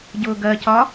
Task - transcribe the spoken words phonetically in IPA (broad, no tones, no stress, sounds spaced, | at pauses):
ɟ ʊː ɡ ɜ c ɒ